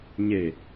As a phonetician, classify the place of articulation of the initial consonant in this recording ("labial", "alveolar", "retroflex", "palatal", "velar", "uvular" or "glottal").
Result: palatal